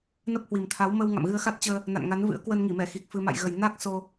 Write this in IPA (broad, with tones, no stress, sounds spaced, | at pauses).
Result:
n ə˦˥ p̚ h w i˨˩ m t̪ʰ a˨˦ w m ə˧ w ŋ a̰˧˨ m ɣ ɨ˧ ə̯ x a˦˥ t̚ t͡ɕ əː˧ | n a̰˧˨ n ŋ a˨˦ n v ɨ̰˧˥ ə̯ k w ə˧ n ŋ i˧˩ m ɛ˧˩ x i˨˩ k̚ f ɨ˧ m a̰˧˨ j ɣ ə˨˩ j n a˦˥ k̚ s o˧